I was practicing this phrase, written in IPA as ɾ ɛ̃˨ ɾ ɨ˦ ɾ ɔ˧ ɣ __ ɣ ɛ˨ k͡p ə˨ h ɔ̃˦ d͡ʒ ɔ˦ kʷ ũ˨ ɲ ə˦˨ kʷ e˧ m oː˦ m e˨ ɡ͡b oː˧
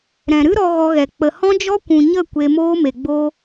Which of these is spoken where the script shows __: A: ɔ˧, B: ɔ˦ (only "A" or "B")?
A